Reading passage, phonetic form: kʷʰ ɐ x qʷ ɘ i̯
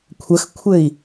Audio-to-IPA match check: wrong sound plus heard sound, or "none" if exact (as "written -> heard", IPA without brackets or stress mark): qʷ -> kʷʰ